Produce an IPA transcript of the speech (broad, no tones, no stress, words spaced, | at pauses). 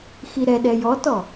xiɾɛɗɛ jɔtɔ